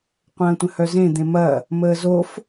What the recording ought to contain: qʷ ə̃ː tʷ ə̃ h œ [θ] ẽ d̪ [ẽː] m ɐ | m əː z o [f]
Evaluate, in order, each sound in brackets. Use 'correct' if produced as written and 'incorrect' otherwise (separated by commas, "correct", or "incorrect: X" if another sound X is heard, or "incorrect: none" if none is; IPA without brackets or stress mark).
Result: incorrect: z, incorrect: ẽ, correct